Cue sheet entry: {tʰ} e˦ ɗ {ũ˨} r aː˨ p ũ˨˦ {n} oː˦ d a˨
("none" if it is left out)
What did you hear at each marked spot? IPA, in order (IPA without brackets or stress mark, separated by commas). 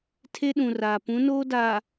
tʰ, ũ˨, n